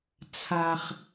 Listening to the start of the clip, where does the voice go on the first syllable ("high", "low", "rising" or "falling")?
low